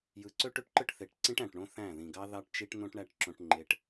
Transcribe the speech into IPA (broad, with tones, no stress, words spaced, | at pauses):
jɯ˨˦ ǀø˦ʈø˦ʈǃɯ˦ʈ θe˨ʈǀĩ˦ʈ æ̃˨ʈɳõ˦θæ̃˦˨ ðĩ˨ɡɑ˦ ðɑ˦ʈt͡ʃi˦ʈ n̪õ˦ʈɳæ˦ʈ ǁõ˦ʈŋ͡ǃe˦ʈ